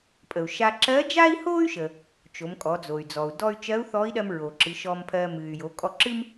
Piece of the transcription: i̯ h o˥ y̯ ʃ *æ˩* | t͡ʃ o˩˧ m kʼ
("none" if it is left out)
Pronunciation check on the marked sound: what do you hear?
ə˩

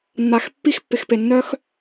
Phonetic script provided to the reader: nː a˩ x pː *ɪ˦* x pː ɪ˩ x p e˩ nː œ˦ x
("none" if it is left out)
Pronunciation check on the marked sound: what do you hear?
i˦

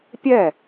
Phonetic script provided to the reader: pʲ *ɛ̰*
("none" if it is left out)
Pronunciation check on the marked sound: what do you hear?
ɛ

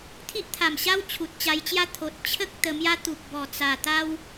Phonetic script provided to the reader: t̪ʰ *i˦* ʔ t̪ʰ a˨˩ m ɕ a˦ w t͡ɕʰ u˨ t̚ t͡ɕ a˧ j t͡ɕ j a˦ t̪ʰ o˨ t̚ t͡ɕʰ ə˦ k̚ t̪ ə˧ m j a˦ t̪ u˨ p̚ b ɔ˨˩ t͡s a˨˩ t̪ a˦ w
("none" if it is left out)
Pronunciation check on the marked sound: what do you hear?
i˦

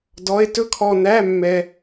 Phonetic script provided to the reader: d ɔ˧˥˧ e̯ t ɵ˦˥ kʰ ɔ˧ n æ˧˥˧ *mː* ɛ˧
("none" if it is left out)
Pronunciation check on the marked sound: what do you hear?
mː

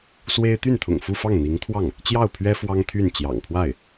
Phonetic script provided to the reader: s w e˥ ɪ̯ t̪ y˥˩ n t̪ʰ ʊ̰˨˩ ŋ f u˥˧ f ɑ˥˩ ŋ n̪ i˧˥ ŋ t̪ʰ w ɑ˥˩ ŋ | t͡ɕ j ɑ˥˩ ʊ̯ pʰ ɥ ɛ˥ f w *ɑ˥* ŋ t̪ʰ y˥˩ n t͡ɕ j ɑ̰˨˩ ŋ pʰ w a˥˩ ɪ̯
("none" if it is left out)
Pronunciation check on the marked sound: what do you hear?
ɑ˥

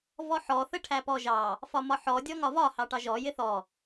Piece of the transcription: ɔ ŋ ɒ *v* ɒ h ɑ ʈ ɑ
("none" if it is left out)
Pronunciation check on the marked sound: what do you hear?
v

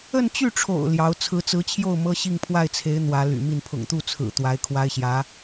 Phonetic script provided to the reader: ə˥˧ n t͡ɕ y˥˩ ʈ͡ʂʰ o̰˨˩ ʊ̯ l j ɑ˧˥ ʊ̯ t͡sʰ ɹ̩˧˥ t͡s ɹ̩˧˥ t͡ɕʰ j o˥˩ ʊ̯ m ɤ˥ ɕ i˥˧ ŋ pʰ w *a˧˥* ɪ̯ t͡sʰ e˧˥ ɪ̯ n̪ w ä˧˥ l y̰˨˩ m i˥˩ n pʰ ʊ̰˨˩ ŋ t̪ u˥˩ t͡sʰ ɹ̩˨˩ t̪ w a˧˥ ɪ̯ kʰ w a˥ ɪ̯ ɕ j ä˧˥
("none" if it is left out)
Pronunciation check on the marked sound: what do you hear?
a˥˩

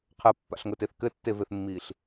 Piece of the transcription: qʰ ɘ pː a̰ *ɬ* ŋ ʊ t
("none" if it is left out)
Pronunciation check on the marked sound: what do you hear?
ɬ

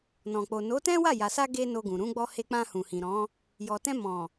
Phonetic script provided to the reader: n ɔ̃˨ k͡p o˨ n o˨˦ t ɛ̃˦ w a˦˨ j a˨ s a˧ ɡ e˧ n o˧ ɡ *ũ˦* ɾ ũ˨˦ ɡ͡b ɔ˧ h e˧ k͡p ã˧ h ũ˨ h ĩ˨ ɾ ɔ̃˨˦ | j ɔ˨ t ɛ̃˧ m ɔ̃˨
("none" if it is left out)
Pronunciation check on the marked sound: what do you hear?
ũ˨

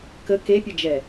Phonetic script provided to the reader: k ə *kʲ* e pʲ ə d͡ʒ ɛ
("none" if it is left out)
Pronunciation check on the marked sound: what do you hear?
k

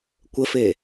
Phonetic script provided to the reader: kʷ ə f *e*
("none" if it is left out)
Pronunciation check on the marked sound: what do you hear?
e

